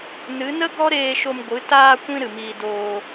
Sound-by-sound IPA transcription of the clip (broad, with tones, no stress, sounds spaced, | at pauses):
n ɨ˨˦ n ə˦ ɡ ɔ˦ ɾ eː˧ ʃ o˧ m ɡʷ ɨ˨˦ t aː˧ kʷ ĩ˧ ɾ ɨ˨ m iː˧ d oː˧